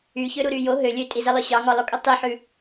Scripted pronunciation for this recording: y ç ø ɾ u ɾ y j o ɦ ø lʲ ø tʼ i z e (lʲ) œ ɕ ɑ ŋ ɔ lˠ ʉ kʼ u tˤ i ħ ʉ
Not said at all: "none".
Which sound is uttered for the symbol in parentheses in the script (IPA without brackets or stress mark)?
lˠ